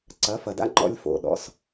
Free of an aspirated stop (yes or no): yes